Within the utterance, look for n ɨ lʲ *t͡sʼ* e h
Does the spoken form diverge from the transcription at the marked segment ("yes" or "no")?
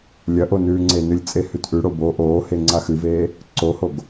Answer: no